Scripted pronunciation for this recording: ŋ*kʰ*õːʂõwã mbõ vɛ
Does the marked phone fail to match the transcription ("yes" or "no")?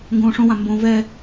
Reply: yes